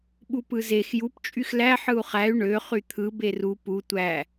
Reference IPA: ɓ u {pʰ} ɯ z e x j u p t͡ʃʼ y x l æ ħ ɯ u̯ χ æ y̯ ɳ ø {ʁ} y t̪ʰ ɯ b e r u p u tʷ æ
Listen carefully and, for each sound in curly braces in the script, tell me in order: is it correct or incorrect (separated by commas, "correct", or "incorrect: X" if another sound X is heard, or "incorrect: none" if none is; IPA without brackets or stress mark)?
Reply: incorrect: p, incorrect: χ